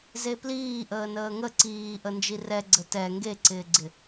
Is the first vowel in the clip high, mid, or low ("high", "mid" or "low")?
mid